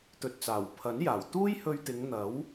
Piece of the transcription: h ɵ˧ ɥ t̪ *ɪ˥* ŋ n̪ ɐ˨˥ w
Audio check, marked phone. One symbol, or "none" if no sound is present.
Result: ɪ˨˧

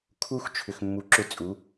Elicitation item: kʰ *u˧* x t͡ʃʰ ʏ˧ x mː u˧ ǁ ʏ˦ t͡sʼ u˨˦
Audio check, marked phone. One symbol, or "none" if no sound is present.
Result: u˦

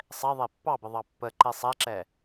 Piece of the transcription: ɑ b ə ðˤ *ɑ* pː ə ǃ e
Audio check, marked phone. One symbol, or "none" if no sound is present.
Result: ɑ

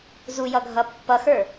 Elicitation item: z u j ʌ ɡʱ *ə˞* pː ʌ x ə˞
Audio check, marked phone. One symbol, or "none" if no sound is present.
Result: ʌ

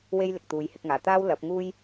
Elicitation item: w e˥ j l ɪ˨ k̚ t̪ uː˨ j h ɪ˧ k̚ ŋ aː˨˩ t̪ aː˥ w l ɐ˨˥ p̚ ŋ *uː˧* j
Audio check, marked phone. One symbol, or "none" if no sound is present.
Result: uː˥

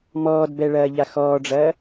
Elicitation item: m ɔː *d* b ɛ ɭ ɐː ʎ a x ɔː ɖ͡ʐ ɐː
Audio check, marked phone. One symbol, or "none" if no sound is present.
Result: d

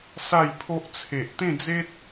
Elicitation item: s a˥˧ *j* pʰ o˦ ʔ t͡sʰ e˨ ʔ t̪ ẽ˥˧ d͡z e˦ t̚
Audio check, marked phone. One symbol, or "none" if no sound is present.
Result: j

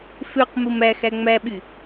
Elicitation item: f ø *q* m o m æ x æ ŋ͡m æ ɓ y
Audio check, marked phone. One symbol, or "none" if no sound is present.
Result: q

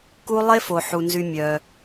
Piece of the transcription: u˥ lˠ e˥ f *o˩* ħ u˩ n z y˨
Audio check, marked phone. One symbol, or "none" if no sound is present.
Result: o˩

